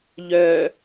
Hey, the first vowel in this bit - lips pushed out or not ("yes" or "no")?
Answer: yes